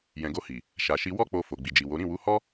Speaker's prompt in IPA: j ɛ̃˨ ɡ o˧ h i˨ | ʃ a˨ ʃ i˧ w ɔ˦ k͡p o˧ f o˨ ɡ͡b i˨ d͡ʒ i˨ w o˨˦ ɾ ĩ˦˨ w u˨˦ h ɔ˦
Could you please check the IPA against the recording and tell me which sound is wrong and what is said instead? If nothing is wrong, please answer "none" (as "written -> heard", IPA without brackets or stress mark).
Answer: none